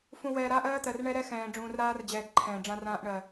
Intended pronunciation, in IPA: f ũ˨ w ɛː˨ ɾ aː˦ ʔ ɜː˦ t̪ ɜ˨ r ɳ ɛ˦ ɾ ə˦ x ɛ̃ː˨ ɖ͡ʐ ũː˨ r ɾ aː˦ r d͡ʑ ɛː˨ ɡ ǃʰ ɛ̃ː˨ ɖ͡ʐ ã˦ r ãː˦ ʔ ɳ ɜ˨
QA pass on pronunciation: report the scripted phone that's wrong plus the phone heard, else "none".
ə˦ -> ɛ˦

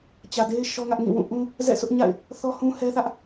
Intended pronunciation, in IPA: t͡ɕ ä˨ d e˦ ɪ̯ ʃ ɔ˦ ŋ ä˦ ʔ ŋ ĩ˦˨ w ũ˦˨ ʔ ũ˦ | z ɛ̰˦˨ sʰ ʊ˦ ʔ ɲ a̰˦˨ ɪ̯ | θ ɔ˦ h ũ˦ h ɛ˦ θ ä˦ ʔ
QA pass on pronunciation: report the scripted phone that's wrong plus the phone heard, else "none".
none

